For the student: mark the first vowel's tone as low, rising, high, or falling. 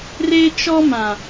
high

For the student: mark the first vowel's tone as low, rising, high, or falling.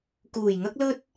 low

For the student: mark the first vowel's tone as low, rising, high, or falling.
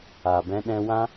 low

